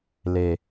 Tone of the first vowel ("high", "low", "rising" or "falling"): low